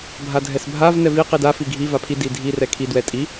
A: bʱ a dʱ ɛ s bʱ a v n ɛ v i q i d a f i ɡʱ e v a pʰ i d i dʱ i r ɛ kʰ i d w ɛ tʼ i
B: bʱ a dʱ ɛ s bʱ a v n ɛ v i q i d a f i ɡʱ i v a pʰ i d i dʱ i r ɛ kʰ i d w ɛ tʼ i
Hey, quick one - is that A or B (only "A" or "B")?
B